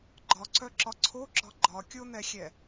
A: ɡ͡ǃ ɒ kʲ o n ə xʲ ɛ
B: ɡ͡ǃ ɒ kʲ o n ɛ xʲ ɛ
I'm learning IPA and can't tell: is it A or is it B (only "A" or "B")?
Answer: B